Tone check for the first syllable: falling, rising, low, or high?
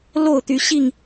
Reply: falling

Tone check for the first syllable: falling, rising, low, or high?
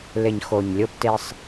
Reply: low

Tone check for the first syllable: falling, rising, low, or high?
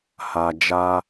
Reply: low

